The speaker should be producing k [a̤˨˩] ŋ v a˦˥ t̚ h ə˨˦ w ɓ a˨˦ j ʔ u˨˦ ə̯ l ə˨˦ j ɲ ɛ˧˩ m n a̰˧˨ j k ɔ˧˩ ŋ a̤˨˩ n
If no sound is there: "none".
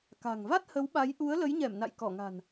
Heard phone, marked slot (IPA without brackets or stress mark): a̤˨˩